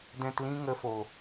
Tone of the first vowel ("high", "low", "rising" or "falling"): low